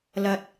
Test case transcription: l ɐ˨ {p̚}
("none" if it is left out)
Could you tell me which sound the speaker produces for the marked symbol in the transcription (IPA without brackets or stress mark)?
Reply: t̚